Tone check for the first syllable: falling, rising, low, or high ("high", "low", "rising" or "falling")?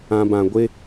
low